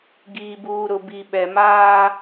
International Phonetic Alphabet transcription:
ɡiː˨buː˨ɾʊ˨ bi˨ɓɛ˨maː˦

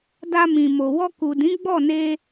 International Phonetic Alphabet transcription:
da˧mĩ˨ mo˨ wɔ˧ku˨dĩ˨˦ ɡ͡bɔ˦˨ne˧

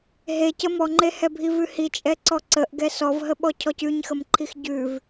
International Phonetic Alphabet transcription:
ɦecə mɔŋ͡ǃehɛbʱi vʉhit͡ʃʼɛ ǀɔǀəʔ ɡɛsɔvɦəɓɔ cʰɔcʉɲxəmǃʰix ɟʉv

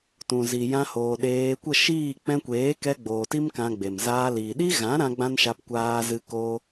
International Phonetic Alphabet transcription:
tũ˨zi˨jã˧hoː˨ ɗeː˧ kʷə˦˨ʃiː˦˨ k͡pɛ̃˧kʷeː˨˦kɛ˧ ɡ͡boː˨ti˦m kã˧ ɡ͡be˨m zaː˧liː˨ ɗi˦ɣã˨˦ ɾã˦ɡ͡bã˦nʃa˧p kʷaː˧zɨ˧koː˧

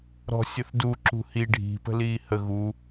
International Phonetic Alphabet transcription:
ɾɔ̤ sʲəθdu ǁṳhi ɖʱi̤ pə̤liːhə ɣu

